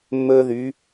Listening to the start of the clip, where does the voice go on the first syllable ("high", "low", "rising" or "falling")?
high